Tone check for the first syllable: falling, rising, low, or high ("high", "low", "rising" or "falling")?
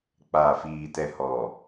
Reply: low